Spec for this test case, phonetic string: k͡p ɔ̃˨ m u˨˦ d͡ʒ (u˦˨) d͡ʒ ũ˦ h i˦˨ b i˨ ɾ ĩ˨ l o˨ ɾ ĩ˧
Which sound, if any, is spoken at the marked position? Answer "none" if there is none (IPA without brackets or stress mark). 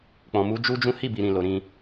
u˦